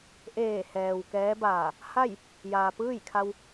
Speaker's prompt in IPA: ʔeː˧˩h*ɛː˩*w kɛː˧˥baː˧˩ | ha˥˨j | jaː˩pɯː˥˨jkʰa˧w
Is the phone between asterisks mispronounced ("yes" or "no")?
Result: no